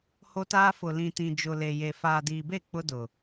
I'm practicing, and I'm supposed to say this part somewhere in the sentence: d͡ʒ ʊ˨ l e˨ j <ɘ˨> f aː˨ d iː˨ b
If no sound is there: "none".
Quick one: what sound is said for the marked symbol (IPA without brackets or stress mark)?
e˨